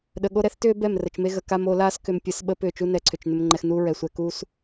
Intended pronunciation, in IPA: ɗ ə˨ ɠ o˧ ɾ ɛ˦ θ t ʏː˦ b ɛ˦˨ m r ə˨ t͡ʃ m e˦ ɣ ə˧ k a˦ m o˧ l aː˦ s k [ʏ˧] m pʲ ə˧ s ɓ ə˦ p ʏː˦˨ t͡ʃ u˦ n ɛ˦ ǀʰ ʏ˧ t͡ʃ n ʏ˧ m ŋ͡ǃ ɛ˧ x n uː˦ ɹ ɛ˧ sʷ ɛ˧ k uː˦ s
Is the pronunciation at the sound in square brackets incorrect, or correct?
correct